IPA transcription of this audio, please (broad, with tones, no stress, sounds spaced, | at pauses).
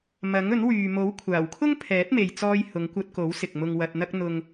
m ɐ˨˥ ŋ ɵ˨˥ n w yː˨ m o˨˥ w kʷʰ aː˨˩ w kʰ ʊ˥ ŋ pʰ ɛː˨˥ t̚ m e˨ j t͡s ɔː˧ j h ʊ˨˧ ŋ kʷ ɐ˧ t̚ k o˨˥ w s ɪ˨ k̚ m ʊ˧ ŋ w ɐ˧ t̚ n̪ ɐ˥ k̚ n̪ ʊ˧ ŋ